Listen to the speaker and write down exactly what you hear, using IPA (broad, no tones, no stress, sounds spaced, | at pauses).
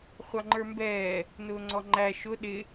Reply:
χʷ ɑ ŋ͡ǃ ə˞ m b ɛː | n ʊː ŋ͡ǀ ɔ ŋ͡ǃ æ ʃ ʊ ɗ ɪ